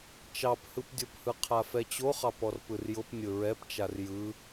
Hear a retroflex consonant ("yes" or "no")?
no